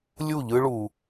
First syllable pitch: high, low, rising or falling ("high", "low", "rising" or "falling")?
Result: falling